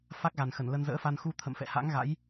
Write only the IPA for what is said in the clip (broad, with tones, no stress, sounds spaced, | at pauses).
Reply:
f a˦˥ k̚ ɣ a˨˩ n x ə˧˩ n l ə˧ n z ə̰ː˧˥ f a˧ n x u˧ t̪ʰ ə̰˧˨ m f ɛ̰˧˨ h a̰˧˥ ŋ ɣ a̰˧˥ j